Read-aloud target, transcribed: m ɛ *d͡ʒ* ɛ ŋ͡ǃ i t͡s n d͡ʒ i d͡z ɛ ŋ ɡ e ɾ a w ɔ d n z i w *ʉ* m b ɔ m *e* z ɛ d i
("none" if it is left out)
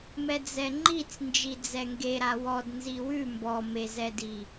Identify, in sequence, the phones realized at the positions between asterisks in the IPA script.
d͡z, ʉ, e

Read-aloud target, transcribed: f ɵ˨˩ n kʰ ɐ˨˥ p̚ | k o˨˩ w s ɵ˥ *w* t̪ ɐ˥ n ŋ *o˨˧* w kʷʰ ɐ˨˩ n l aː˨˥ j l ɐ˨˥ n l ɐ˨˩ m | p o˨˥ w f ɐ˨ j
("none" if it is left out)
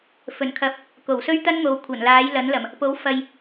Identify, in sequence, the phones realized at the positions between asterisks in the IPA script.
ɥ, o˨˧

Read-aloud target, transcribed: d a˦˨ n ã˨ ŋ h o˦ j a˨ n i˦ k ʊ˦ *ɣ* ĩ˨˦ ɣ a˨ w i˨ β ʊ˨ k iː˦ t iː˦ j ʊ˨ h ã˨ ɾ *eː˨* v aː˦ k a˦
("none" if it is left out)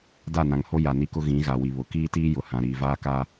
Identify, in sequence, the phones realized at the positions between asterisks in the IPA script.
ɣ, iː˨

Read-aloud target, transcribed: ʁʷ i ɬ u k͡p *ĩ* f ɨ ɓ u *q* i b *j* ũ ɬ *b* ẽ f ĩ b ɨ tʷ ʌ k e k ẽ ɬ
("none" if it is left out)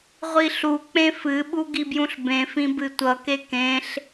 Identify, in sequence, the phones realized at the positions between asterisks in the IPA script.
ẽ, ɡ, j, b

